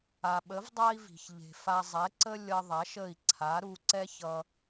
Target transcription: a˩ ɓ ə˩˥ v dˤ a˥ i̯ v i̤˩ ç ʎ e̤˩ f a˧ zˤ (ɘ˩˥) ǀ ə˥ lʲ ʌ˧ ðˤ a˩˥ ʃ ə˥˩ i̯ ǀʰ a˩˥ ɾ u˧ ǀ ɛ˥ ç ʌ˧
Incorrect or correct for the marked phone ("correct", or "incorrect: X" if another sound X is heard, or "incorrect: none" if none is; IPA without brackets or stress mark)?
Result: incorrect: ɛ˩˥